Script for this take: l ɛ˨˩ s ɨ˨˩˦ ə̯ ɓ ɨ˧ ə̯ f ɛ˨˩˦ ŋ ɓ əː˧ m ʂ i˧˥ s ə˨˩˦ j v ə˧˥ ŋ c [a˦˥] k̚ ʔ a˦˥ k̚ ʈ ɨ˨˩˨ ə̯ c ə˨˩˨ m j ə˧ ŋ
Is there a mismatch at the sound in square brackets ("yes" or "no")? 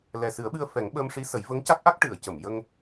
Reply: no